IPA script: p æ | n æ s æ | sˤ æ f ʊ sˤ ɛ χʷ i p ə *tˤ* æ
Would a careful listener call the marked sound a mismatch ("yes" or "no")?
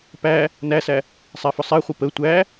yes